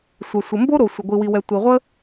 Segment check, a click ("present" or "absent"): absent